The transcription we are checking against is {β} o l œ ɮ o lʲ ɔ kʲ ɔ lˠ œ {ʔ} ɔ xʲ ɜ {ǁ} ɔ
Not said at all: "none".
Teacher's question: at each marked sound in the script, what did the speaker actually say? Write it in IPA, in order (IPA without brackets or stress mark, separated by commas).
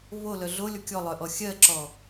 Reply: β, ʔ, ǁ